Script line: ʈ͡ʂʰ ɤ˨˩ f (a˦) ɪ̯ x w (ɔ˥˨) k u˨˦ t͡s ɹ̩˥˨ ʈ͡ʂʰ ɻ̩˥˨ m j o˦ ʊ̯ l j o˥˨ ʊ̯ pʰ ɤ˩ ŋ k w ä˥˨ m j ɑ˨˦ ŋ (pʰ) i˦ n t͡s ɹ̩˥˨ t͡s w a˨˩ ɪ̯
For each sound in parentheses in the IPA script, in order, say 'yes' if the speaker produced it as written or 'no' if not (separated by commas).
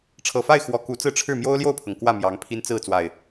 no, no, yes